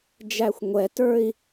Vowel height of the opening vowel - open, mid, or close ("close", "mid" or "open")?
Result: open